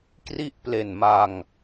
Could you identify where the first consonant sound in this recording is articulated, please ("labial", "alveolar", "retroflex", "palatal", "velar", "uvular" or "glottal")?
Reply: velar